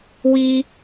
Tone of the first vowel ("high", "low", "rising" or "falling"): high